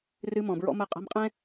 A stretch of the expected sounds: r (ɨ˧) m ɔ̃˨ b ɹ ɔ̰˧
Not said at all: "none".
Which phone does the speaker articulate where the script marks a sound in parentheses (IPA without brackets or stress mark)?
ɨ˧